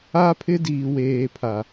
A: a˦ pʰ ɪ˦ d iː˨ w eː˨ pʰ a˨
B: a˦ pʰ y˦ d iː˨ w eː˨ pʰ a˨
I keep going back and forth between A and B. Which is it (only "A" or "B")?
A